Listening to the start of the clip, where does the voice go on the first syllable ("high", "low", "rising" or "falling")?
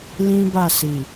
high